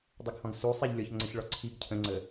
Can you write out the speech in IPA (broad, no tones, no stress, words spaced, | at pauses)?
dˤəɡhɔ̃ɡ su sˤiʎ lʲɔçŋ͡ǀɘçɭɔ ǀʰiɡ cʰə̃ŋ͡ǀə